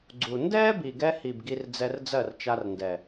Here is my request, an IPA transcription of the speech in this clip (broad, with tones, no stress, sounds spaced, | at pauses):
ɡ͡ǀ u˨ n d ɛː˦ b i˨ ɡ ɛ˧ h i˨ b ɡ i˧ r d͡z ɛ˧ r d͡z ɜ˦˨ r t͡ʃ a˧ r n d ɛ˨